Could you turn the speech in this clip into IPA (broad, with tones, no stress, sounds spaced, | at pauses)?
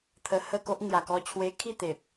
t̪ʰ ə˧ h ə˥˧ k o˦ ʔ ŋ j a˨˩ k ɔ˧ t͡ɕʰ w e˧ kʰ i˥˧ t̪ e˨ p̚